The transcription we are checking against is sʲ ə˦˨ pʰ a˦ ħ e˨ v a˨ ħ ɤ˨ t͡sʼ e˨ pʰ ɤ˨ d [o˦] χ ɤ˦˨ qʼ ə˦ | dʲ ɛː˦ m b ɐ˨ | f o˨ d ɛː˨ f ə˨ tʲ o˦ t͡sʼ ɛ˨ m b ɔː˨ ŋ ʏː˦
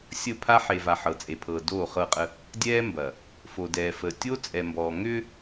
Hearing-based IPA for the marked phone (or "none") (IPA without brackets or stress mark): o˦˨